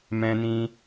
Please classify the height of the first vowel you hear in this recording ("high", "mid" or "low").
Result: mid